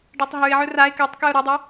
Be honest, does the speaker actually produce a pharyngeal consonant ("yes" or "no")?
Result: yes